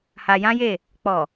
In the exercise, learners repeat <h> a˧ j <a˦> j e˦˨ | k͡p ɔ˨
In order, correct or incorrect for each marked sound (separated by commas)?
correct, incorrect